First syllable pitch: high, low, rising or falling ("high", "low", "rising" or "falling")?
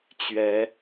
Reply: rising